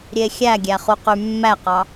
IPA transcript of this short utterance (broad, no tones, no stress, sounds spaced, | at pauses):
ɾʲ e xʲ æ ɡʲ æ χ u q y mː æ q ɑ